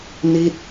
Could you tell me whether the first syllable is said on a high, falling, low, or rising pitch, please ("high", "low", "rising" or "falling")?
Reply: falling